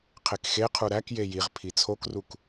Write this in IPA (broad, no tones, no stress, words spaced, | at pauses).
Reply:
qʰekxeqʰu ɾækje jiʁ pʰit͡sʰokruk